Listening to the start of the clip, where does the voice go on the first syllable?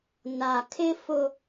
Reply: low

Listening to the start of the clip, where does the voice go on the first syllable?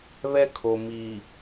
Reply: high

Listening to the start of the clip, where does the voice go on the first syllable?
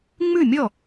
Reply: falling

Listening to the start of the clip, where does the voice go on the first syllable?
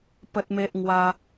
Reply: high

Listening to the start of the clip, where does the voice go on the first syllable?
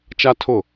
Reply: high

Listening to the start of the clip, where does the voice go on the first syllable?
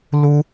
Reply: high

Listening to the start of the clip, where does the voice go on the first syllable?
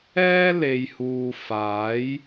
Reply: high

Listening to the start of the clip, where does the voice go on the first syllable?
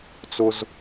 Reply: high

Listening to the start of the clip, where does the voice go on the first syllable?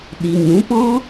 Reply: low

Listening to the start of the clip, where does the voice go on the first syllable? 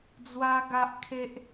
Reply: high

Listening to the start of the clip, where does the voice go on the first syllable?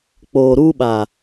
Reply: low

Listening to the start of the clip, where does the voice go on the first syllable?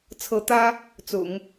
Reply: rising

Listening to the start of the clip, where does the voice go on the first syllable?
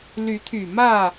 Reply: rising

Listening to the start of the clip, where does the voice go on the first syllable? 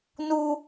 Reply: high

